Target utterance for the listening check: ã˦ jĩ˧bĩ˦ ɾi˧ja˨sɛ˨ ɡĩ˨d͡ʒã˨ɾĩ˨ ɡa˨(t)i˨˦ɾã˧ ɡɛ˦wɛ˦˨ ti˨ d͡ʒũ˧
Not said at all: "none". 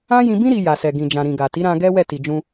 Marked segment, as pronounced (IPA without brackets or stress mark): t